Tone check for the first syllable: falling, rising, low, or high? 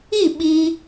falling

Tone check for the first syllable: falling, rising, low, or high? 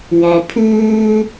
low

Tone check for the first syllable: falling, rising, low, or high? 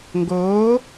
rising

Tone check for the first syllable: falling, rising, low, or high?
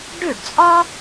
falling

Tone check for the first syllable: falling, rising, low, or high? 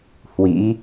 rising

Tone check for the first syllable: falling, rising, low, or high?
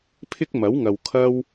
high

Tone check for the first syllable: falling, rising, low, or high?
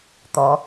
rising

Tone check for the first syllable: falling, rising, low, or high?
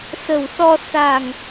low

